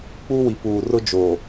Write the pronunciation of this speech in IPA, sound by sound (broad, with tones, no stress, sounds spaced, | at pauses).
k͡p u˦ w i˨ p uː˨ r ʊ˦ d͡ʒ oː˨